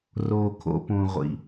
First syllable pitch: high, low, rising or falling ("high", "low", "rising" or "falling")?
low